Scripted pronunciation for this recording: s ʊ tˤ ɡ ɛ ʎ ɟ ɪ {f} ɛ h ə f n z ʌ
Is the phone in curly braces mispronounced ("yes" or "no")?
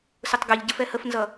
no